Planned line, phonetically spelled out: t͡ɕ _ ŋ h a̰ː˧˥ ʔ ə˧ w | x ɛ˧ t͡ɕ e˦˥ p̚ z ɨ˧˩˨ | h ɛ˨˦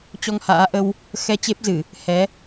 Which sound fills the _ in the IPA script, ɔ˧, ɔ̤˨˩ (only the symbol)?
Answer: ɔ˧